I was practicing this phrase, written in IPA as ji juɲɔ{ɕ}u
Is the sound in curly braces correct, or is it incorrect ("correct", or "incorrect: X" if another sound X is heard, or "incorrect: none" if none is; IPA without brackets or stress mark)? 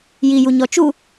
incorrect: t͡ʃ